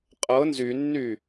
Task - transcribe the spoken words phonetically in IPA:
qʼ ɤ n z y nː y

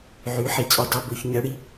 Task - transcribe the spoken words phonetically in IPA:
ʕ y˨˥ ħ i˨˩ t͡sʼ y˨˩˦ dˤ ɛ˦˨ b ɵ˦˨ ç ɲ ɜ˨˥ ɽ i˨˥

